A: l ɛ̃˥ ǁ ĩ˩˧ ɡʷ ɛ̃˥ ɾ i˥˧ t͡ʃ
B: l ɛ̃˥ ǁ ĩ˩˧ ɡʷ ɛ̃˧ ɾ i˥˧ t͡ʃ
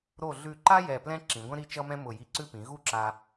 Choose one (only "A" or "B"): A